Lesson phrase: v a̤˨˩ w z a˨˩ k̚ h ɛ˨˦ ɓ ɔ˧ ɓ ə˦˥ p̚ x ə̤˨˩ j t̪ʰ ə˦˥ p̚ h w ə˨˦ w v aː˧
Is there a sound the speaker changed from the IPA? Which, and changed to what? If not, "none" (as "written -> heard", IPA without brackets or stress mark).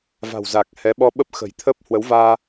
none